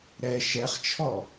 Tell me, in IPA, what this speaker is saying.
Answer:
ɾ ɛ ʃ ɛ χ t͡ʃʰ ɔ

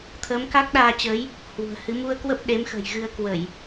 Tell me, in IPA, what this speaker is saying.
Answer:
t̪ʰ əː˨˦ m k a˦˥ k̚ ɗ aː˧ t͡ɕ əː˨˦ j | h w ṳ˨˩ ə̯ h ɨ˨˦ m u˧ ə̯ k w ə˦˥ p̚ ɗ e˨˦ m x ə̤˨˩ j ɣ ɨ˧ ə̯ k w ə˧˩˨ j

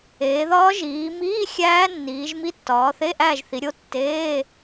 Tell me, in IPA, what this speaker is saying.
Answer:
eː˩˧ ð ɒː˦˥ ʒ iː˩˧ m iː˧˥˧ xʲ æː˦˥ nː iː˩˧ ʒ m i˦˥ tː ɒː˩˧ θ e˧˥˧ ʔ æː˦˨ ʒ θ i˩˧ ɾʲ o˦˥ tː eː˧˥˧

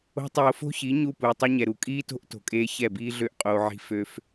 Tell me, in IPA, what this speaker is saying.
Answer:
o̤˦ tˤ oː˧ f o̤˦ ç i˨˦ ɲ u˦˨ p uː˨ tˤ ɛ˦ ɲ ɛ˨ ɾ u˨ kʼ iː˦ t o̤˦ ʔ t o̤˨ kʼ eː˧ ç ɛ˦˨ b iː˦ ɮ ø˦ ʔ qʼ oː˧ ʕ i̤˦ f ø˦ f

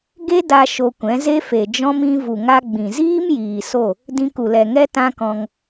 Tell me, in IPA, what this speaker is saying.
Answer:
ɡ e˦ d a˧ ʃ o˧ kʷ ɛ̃˨˦ z e˦ f e˨ d͡ʒ ɔ̃˦ m ĩ˧ v u˨ ŋ a˧ ɡ͡b ĩ˨ z iː˦ m j iː˨ s o˦˨ | d ĩ˧ k u˨ l ɛ˨ ŋ ɛ˦ t ã˦ k ɔ̃˧ ŋ

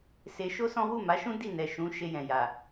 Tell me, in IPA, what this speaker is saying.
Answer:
s e˧ ʃ o˦ s ɔ̃˦ w u˦˨ m a˨˦ ʃ ũ˦ d i˦˨ n ɛ˨ ʃ ũ˨˦ ʃ e˧ j ɛ̃˨ j a˨

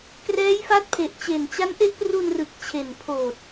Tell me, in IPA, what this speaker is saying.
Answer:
k r ɛː˦˥ j f a˦˥ t̚ pʰ e˨˩ ʔ t͡ɕ e˨˩ n t͡ɕ a˦˥ n ʔ e˦˥ ʔ p r u˧ n r ɯ˨˩ k̚ t͡ɕʰ e˨˩ n pʰ oː˨˩ t̚

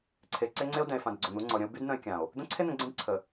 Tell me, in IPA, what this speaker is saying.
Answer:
ǀʰ e˨ ǀ e˦ ŋ͡ǀ e˦ o̯ d ɛ̃˨ e̯ f ã˨ d ɡ͡ǀ o˨ n̪ u˨˦ ŋ͡ǀ ɔ˨ ɾʲ ə̃˦ o̯ b y˦ d n ə̃˦ e̯ kʲ ã˨ o̯ | d̪ ə̃˦ ǀʰ e˦ n̪ ɛ̃˨ ɡ͡ǀ ɛ̃˦ d ǀʰ ə˨

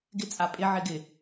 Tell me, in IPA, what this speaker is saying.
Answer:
ɡ ɪ t͡sʼ a pʼ ɪ ʕ ɪ ɡ ɪ

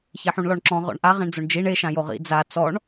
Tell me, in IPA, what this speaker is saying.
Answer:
ç e ħ ũ ɳ l ɔ ɳ ǁ ɔ̃ ʁ ɔ̰ ɳ ʔ a ʁ ɛ̃ ɳ d͡z o ɳ d͡ʒ i ɳ e ʃ ã j o ʁ ḭ d͡z a t͡s ɔ ɳ

